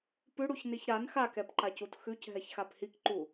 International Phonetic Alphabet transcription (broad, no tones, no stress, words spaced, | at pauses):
pʉɽuçniç ɾan xakɛpǃacut xʉcɦɛçxap hikǃu